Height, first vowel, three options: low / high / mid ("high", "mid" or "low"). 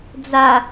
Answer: low